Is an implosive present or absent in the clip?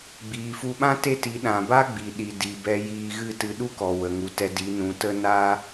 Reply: present